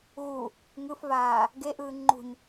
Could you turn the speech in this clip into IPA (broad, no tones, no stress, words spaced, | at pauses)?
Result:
ɣu | ŋɯfvaː | ɡeʔɯː ŋ͡ǃṳɲ